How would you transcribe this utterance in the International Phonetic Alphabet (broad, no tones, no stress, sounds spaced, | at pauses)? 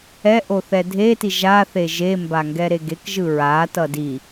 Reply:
ɛ ʔ o θ ɛ dʱ e t i ʒ a θ e ʒ e m b a ŋ ɡ ɛ ɾ e ɡ e k ʒ ɯ ɹ a t ʌ d i